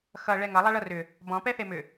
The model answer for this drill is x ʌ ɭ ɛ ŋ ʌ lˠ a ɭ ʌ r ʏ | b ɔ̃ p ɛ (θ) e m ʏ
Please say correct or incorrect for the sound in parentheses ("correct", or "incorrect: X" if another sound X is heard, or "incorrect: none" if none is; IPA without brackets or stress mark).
correct